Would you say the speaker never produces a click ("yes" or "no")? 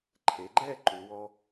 no